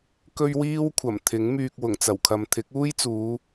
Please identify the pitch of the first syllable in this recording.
high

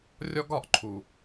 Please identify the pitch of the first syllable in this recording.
high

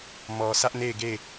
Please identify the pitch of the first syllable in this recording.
low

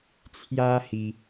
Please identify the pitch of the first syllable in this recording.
high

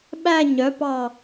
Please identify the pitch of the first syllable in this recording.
falling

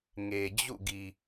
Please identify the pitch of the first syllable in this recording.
low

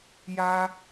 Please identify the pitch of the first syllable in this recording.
high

